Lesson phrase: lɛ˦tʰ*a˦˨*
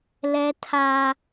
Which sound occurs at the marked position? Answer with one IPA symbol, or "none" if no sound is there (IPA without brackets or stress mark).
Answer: a˦